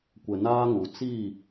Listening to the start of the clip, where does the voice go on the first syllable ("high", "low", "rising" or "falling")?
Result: low